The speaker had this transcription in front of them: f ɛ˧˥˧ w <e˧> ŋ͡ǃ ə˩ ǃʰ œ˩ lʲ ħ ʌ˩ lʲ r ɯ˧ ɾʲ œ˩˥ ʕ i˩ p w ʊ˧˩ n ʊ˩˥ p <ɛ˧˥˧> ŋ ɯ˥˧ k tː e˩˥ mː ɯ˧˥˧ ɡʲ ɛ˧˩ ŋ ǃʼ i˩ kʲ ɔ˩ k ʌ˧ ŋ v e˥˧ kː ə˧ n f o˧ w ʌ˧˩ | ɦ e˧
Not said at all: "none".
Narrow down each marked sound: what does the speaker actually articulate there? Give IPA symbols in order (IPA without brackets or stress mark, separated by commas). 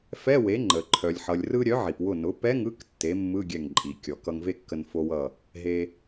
e˩˥, ɛ˧˥˧